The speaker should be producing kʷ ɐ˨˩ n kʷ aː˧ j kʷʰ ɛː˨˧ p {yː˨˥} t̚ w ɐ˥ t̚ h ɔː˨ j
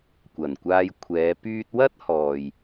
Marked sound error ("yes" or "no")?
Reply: yes